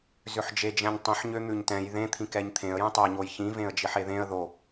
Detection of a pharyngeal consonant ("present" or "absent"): present